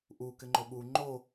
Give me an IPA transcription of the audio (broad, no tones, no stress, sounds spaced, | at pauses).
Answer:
ʔ u k ɪ ŋ͡ǃ o ɓ u ŋ͡ǃ o